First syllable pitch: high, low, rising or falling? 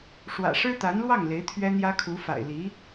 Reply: low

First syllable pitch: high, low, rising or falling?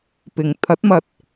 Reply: low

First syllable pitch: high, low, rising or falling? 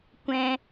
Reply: high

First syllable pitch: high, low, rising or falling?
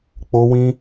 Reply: high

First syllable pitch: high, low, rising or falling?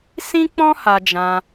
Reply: high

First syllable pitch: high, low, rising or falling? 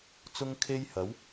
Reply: high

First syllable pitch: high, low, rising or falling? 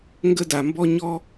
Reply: high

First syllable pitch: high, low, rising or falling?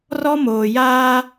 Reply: high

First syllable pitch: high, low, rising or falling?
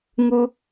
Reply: high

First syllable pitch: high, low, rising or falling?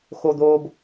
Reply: high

